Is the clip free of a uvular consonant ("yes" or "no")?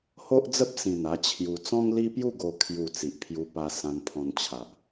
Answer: yes